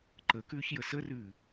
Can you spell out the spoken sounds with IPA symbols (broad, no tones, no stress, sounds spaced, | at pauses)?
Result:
ǃ ə k ʉː ç j ə s ə r ʉː